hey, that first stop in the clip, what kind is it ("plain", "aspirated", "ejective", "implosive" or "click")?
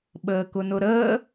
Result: implosive